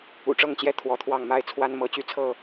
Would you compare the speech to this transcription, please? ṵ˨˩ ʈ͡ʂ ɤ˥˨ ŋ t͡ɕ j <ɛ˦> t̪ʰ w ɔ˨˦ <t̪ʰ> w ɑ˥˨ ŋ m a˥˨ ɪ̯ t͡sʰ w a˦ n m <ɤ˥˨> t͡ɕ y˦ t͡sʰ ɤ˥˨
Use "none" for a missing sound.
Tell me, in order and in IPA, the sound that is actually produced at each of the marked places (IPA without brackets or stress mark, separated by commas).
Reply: ɛ˦, t̪ʰ, ɤ˨˦